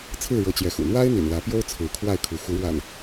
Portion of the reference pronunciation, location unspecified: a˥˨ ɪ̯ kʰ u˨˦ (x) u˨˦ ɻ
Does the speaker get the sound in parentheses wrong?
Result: no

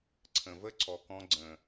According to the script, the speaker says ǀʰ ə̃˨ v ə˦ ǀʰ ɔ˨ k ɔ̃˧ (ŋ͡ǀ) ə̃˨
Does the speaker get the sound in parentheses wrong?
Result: yes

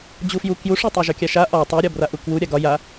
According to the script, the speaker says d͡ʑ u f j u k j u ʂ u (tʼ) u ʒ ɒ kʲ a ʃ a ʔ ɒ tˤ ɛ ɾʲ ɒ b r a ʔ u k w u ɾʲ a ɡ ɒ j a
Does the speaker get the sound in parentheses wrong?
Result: yes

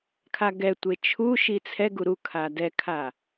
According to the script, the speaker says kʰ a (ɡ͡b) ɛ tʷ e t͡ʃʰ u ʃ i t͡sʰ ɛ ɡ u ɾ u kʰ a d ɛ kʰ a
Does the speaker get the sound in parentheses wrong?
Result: yes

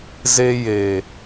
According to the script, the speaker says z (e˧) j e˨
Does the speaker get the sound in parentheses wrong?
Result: no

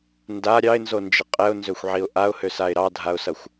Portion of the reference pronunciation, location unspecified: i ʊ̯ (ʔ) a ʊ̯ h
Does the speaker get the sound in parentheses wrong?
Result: no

